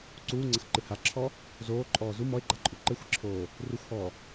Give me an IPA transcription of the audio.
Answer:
ǀ uː ŋ͡ǀ ɐ x ǃ ɨ h a ǁʰ ɔ | z oː ǃʼ ɔː z u m ɔ e̯ ɡ͡ǃ a ǃʼ u ǃ ɘ xʷ i ǁʰ oː | r u xʷ h ɔː

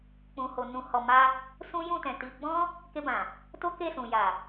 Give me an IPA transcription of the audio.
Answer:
k͡p ũ˨ h o˨ n ũ˨ h ɔ˨ m a˧ | s ũ˦ j ũ˦˨ t ɛ̃˨ t i˧ ɡ͡b ɔ̃˦ | k e˧ b ã˨ | t o˦ k e˦˨ s ũ˨ j a˨

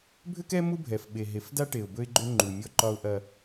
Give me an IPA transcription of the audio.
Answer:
bʱ ʏ˦ k ɛ˦ m u˦ bʱ ɛ˨ f ɓ e˨ ɦ e˨ f d a˦ ʈ e˨ ʊ̯ b ɵ˦ ɪ̯ ɡ͡ǃ ʏ˦ ŋ͡ǃ u˨ mʲ ɔ˦ ǃ ɒ˦ ʊ̯ ʔ ɐ˦

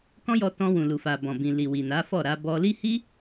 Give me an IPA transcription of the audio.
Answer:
k ɔ̃˦ j ɔ˧ t ɔ̃˧ w ũ˨ l u˨ f a˨ b ɔ̃˨ b ĩ˨ l i˨ w i˨ n a˨˦ f ɔ˦˨ ɾ a˧ b ɔ˧ l i˦ h i˦

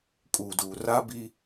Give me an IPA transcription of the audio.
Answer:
kʼ uː˨ d uː˨ r a˦ b i˦

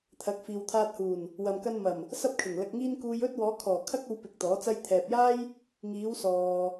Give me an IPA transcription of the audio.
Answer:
t̪ʰ ɐ˨˥ k̚ f iː˨ w t̪ʰ aː˧ t̚ h uː˨˩ n | w ɐ˨ m k ɐ˧ n m ɐ˨˩ m | s ɐ˥ p̚ kʰ ɪ˨˩ ŋ l ɐ˧ k̚ ŋ iː˥ n k uː˧ j ɵ˥ t̚ w ɔː˨˧ kʰ ɔː˨˩ kʰ ɐ˥ k̚ o˧ w p ɪ˨ k̚ t̪ ɔː˨˥ t͡s ɐ˥ j t̪ʰ ɛː˨ p̚ j aː˥ j | ŋ iː˨˧ w s ɔː˨

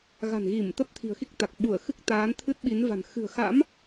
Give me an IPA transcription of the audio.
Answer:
ɣ a̤˨˩ n ɣ i˧˩ m t̪ ə˦˥ p̚ t̪ʰ i̤˨˩ ə̯ x i˦˥ k̚ t̪ a˨˩ k̚ ɓ u˧˩ ə̯ x ɨ˦˥ k̚ t̪ aː˨˦ n t̪ʰ ɨ˦˥ t̚ ɓ i˨˦ n v a̤˨˩ n x ɨ̤˨˩ ə̯ x a̰˧˥ m

